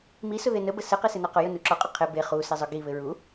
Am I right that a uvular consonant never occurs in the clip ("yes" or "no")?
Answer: no